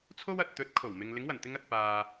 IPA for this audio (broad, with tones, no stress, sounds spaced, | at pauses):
t͡sʰ o˥ w ɐ˨ t̚ t̪ ɵ˨˥ t̚ kʰ o˨˩ w m ɪ˨ ŋ l ɪ˨˥ ŋ w ɐ˨˩ n t̪ ɪ˧ ŋ ɐ˨ t̚ p aː˨